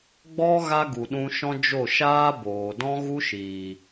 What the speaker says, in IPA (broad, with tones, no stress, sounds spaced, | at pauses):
ɡ͡b ɔ˦ ɣ a˦ ɡ u˨ ɗ ũ˧ ʃ ɔ̃˦ d͡ʒ o˦˨ ʃ aː˦ b oː˨ d ɔ̃˦ ɣ u˦ ʃ iː˨